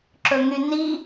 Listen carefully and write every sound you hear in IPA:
ǁ ɵ ŋ y n i

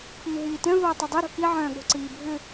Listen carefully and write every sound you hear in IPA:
p iː ɦ iː t œ̃ v oː tˤ œ dˤ ø ɾ o̤ k i ʕ œ̃ː ɠ o̤ ǀ iː bʱ ʏ

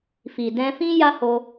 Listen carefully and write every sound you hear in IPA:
f i˨ d ɛ̃˧ f ĩ˦ j a˦ h o˧

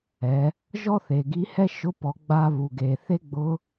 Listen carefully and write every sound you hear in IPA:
ɛ˩˧ | ʒ ɔ˥ θ e˩ ɡ i˧˥ h ɛ˥ ʃ ʊ˧˥ p ɔ˩˧ ɡ͡b a˧ β u˩ ɡ e˩ θ e˥ ɡ͡b ʊ˧˥

